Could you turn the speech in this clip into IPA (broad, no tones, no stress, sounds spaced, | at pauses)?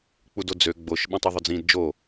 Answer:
k͡p u d o d͡z ø ɡ͡b o ʃ ɓ ɛ̃ tˤ æ ðˤ ɵ d͡z ĩ d d͡ʒ o